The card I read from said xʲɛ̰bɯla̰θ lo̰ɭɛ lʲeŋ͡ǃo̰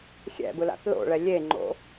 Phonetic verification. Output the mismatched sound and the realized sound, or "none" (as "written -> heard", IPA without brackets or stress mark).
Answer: none